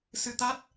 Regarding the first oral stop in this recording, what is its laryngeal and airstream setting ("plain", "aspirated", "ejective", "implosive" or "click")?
plain